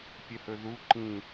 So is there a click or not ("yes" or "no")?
yes